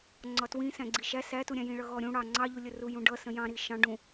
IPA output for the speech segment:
ŋ͡ǀɒtwĩ sæ̃ɡ͡ǀiʃæ sætuɾʲæ̃ jĩɭʌɣɔɾʲũ ɽɑ ŋ͡ǀɑʎulʲəru jũɖʌ sə̃jɑ̃ ɾiʃɑ̃ ɖũ

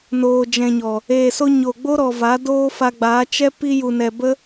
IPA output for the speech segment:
noː˨ d͡ʒɛ̃˨ɲɔ˨ | eː˨so˧ ɲo˨ɡ͡bo˦ɾɔ˨ va˨˦doː˦fa˧ɡ͡baː˨˦ t͡ʃɛ˦ pi˧ju˨nɛ˨ bə˦

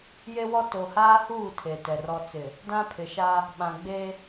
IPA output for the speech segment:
je˦wɔ˦ to˨haː˦huː˦˨ tʰe˨tɛ˨ rɔ˨ t͡sɪ˨ | dã˦pʰɪ˨ʃa˦ | ɓã˨ɡ͡be˦

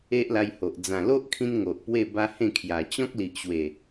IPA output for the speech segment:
e˦ʔla˧jho˨ʔ d͡zã˨˩lo˦ʔkʰĩ˧n ŋo˨ʔ pwe˥˧ba˦hẽ˥˧kʰja˨˩ t͡ɕɔ̃˦k̚li˨ʔɕwe˨˩

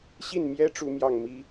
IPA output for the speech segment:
ɕi˥˩nmjɛ˥ ʈ͡ʂu˥mjɑ˥˩ŋ mi˥

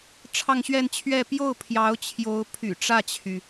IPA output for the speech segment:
ʈ͡ʂʰɑ˥˧ŋɕɥɛ˥˧nt͡ɕʰɥɛ˥˧ pjo˥˩ʊ̯pʰjɑ˧˥ʊ̯ t͡ɕʰjo˧˥ʊ̯pʰy̰˨˩ ʈ͡ʂä˥˩t͡ɕʰy˩

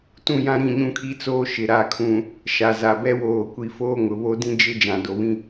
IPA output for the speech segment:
tũ˦˨jã˦ ɾĩ˦˨ɲũ˦kʰi˦ t͡soː˦ʃɪ˨ ɾa˨kʰũ˨ | ʃa˨za˨ bɛ˦woː˨ kʷi˨ foː˦ŋʊ˨βo˦dĩ˦ d͡ʒɪ˦ d͡ʒã˨do˨βĩ˦

